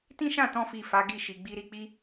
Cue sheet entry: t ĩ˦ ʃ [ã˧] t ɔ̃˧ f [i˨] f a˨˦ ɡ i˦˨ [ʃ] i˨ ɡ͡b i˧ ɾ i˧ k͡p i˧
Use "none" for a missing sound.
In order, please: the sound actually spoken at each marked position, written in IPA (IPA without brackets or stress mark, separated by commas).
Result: ã˦˨, i˨, ʃ